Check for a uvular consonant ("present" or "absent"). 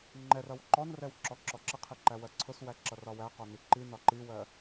present